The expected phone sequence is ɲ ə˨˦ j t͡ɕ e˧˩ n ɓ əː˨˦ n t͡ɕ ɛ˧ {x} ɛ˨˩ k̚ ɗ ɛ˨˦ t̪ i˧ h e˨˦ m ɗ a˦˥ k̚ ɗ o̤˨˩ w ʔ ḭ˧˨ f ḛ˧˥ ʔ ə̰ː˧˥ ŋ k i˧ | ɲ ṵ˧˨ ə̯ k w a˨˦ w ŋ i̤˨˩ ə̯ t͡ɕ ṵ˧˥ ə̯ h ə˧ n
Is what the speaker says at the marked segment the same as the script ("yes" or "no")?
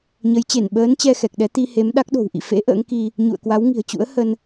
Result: yes